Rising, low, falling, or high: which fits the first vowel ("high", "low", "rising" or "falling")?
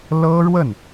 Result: high